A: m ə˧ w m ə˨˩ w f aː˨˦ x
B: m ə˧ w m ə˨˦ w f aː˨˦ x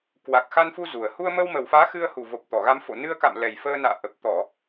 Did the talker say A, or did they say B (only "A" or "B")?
A